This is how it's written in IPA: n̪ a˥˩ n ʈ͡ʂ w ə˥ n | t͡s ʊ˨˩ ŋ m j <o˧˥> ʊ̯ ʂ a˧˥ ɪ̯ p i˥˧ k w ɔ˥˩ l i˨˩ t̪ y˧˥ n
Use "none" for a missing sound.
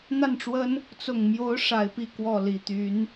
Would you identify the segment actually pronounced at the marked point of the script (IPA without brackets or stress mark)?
o˧˥